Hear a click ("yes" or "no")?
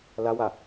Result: no